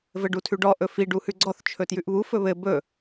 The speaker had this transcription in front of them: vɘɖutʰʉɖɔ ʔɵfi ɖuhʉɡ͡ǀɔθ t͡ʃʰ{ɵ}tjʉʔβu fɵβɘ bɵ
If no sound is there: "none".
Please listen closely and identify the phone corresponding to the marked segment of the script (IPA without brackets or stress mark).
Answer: ɵ